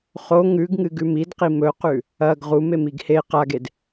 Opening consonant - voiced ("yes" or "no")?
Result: no